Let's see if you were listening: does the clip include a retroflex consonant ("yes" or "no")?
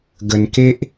no